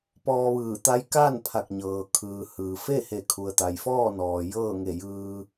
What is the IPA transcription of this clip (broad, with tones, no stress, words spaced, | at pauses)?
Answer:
pɔː˧ʋɯː˧˩t̪a˧˥j ka˥˨n pʰa˧˩k̚ɲɤː˩kʰɯː˩hɯː˩ fe˥˨ he˧˩kʰu˩ə̯t̪a˩jfɔː˥˨ nɔː˩ jɤː˥˨ŋe˧˩jɯː˧